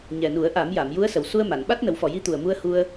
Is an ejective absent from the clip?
yes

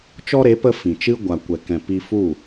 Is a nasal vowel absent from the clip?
no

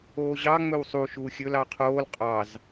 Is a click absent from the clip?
yes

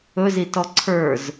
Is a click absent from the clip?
no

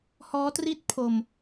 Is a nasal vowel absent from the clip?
yes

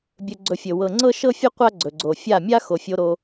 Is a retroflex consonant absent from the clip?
yes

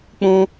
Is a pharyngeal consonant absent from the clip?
yes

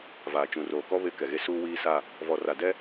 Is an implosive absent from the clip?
yes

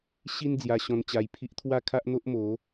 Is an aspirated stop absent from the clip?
no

